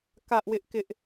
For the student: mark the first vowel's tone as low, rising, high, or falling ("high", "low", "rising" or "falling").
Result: high